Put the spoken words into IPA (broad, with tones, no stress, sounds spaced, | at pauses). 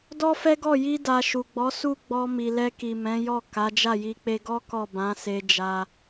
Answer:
d ɔ˦ f ɛ˦ ɡ ɔ˦˨ j i˧ d a˨ ʃ u˨ ɡ͡b ɔ˨˦ s u˦˨ ɡ͡b ɔ˧ m i˨ l ɛ˧ k i˨ m ɛ̃˨˦ j ɔ˦˨ k a˨˦ d͡ʒ a˦˨ j i˧ k͡p e˧ ɡ ɔ˦ k ɔ˦˨ b ã˨˦ s e˧ d͡ʒ a˧